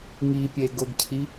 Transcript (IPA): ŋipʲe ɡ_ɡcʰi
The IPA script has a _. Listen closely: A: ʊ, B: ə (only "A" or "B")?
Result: A